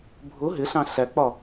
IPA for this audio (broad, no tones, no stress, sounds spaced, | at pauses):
bʱ ʊ ɦ ɪ ɬ ɑ̃ ɬ æ k͡p ɒ